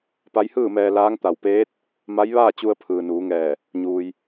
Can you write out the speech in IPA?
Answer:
p a˧˥ j h ɯː˥˨ m ɛː˧ l aː˧˥ ŋ t̪ a˧˩ w p eː˧˥ t̚ | m a˧˥ j ʋ aː˥˨ t͡ɕ u˧ ə̯ pʰ ɯː˩ n uː˩˧ ŋ ɛː˧˩ | ɲ uː˩ j

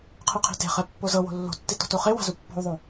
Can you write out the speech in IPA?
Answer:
qʰ ɯ qʰ i̤ t e̤ χ ɛ pː o z ɤ w o̤ lː o̤ tː i t ɔ̤ t o χ e w a̤ z u pː ɔ̤ u̯ ðˤ o

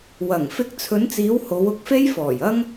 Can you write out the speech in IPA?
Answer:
w ɐ˨˩ ŋ f ɪ˧ k̚ t͡sʰ ɵ˨˧ n t͡s iː˨˧ w h o˨˧ w ʊ˨ k̚ f e˥ j f ɔː˨˩ j ɐ˥ ŋ

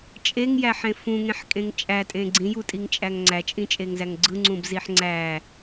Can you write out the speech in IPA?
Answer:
t͡ʃʼ e ŋ j æ ħ ẽ f ũ ŋ ẽ ħ kʼ ẽ ŋ t͡ʃʼ æ tʼ ẽ ɡ͡ǀ ĩ j u tʼ i ŋ t͡ʃʼ æ ŋ ŋ͡ǀ æ t͡ʃʼ ĩ t͡ʃʼ e ŋ z æ ŋ ɡ͡ǀ ɯ ŋ͡ǀ ũ b z i ħ ŋ͡ǀ æ

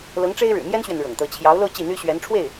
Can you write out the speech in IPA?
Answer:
l ɤ˧˥ ŋ ʈ͡ʂ e˥ ɪ̯ ɻ ɻ̩˨˩ m j ɛ˥ n ɕ ɥ ɛ˨ n ɻ ɤ̰˨˩ ŋ t̪ ɤ˧˥ t͡ɕʰ j ɑ˧˥ ʊ̯ l o˥˧ ʊ̯ t͡ɕ i˥˩ n̪ y˥ ɕ ɥ ɛ˧˥ n ʈ͡ʂʰ w e˥˩ ɪ̯

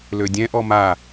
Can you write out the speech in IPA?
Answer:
l ø dʲ ɛ̃ ʔ ɔ m a

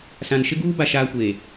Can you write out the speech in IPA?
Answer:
s ã˨ n ʃ ɪ˦ ɡ uː˦ b a˦ ʃ aː˦ kʷ eː˨

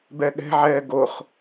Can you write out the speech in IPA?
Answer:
b ɛ ɠ ɛ̤ ʕ ɛː ɡ o χ

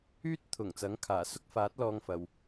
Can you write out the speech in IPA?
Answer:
yː˥ t̚ t̪ʰ ʊ˨˩ ŋ t͡s ɐ˨˥ ŋ kʰ aː˨˩ s ʊ˥ k̚ f aː˨˥ t̚ l ɔː˧ ŋ f ɐ˨ w

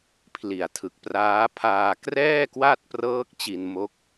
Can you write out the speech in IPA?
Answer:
pʰ l i˨˩ a̯ tʰ ɯ˨˩ k̚ p r aː˦˥ pʰ aː˧ k r ɛː˥˩ k w a˥˩ t̚ p r ɤː˦˥ k̚ t͡ɕ i˧ n m o˦˥ k̚

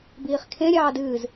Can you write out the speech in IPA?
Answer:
b iː χ kʰ ẽ ɾʲ ɑː d ɨː z

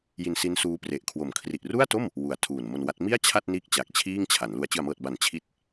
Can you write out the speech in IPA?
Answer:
j i˧ n s i˦˥ n s uː˦˥ p r e˨˩ ʔ kʰ w o˨˩ m kʰ r i˨˩ ʔ r u˥˩ a̯ t o˥˩ m | w u˨˩ a̯ tʰ uː˨˩ n m o˧ n w a˦˥ t̚ m i˥˩ a̯ t͡ɕʰ a˥˩ t̚ n iː˦˥ k̚ t͡ɕ a˨˩ k̚ t͡ɕʰ iː˥˩ ŋ t͡ɕʰ a˩˦ n l u˧ a̯ t͡ɕ ɯ˨˩ a̯ m ɤː˨˩ t̚ b a˩˦ n t͡ɕʰ i˦˥ t̚

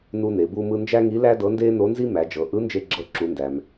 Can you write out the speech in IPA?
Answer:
n u˥ n e˩˧ b u˥ m ɯ˥ n d͡ʒ æ˥ ŋ i˧˥ l æ˥ d ɤ˧˥ n d eː˥ n o˧˥ n z i˥ m æ˩˧ d͡ʒ ɤ˩˧ ʔ ɯ˧˥ n d͡ʒ e˧ ɡ͡ǁ ɤ˧ ǁ u˩˧ n d æ˩ m

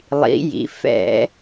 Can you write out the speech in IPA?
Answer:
lˠ ḭ˩˧ j ḭ˩˧ f ɛ̰˧˩˧

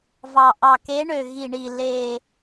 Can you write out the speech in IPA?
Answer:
v ɑ˨˩ ʔ ɑ˨˩ k e˨˦ ɳ ø˨˩ ɣ i˨˩ ɳ i˨˩ l e˨˩

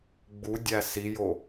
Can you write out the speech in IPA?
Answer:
ɡ͡b u dʲ æ s i j o

